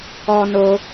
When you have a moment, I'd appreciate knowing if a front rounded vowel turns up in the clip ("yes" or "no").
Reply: no